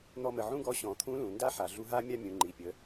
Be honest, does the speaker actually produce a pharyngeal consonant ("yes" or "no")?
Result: yes